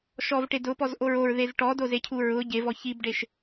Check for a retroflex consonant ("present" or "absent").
present